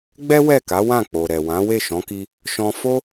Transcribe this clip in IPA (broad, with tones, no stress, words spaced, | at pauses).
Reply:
ɡ͡bɛ˦ wɛ˦˨ka˨˦ wã˦˨k͡po˨ɾɛ˨wã˨˦ we˦˨ʃɔ̃˨˦ki˧ | ʃɔ̃˧ fo˦